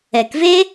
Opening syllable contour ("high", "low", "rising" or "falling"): low